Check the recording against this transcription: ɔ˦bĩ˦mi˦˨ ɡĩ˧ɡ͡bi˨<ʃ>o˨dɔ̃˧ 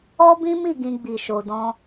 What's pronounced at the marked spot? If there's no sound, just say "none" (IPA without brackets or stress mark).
ʃ